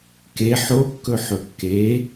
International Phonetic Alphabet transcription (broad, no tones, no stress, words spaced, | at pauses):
ke ħokːɵ ħɵkːe